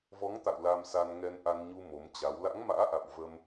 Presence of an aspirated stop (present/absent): absent